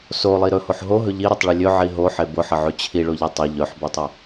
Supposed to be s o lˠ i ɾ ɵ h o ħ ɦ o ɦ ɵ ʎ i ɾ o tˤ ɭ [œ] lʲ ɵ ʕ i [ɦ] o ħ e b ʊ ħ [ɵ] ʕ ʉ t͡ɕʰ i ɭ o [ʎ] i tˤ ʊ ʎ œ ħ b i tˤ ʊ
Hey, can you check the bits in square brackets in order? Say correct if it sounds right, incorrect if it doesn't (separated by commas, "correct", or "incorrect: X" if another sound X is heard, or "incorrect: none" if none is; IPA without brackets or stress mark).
incorrect: ɵ, correct, incorrect: ə, correct